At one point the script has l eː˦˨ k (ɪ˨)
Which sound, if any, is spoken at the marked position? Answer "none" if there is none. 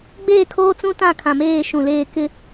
ɪ˦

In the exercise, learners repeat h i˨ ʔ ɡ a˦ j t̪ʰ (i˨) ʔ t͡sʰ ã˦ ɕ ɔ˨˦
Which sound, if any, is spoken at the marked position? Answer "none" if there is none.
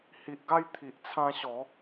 i˨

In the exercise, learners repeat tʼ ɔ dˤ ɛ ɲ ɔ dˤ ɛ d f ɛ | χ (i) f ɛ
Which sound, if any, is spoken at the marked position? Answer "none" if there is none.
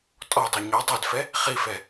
i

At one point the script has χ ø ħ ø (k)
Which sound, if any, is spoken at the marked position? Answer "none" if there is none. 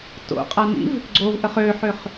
χ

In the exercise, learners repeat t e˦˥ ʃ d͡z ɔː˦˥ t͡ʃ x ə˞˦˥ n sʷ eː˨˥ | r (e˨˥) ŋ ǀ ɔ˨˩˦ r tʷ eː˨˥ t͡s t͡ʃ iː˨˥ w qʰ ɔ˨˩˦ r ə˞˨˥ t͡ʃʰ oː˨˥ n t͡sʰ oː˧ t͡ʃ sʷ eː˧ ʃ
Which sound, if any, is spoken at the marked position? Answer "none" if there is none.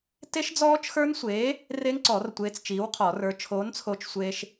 e˦˥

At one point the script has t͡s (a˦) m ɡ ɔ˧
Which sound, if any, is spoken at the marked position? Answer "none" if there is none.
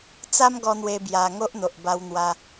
a˦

